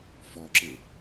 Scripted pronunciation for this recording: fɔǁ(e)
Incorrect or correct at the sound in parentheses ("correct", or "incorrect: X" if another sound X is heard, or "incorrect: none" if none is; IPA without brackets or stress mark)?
correct